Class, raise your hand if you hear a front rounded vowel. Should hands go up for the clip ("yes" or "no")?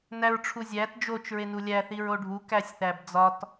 no